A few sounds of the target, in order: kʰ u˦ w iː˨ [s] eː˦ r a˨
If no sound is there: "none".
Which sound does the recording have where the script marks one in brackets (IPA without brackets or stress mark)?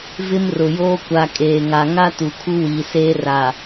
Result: s